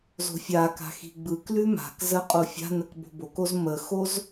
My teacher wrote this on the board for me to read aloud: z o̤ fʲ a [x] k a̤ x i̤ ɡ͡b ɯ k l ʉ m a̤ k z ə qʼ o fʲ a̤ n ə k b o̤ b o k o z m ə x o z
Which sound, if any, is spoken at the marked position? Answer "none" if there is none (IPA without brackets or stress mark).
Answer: none